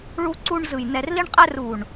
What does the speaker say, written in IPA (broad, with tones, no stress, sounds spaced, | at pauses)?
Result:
ɭ u˧ ǀ u˧ ɳ z ɯ˨ j n ɛ˨ r l i˧ ɳ qʼ ɛ˧ r u˨ ɳ